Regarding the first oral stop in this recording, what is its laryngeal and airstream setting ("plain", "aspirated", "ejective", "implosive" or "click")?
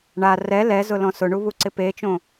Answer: click